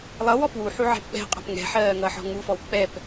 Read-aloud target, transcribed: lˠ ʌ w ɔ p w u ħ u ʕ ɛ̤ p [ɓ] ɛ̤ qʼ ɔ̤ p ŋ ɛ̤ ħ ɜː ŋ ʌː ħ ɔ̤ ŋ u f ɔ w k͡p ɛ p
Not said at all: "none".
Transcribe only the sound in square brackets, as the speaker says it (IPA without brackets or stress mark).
ɓ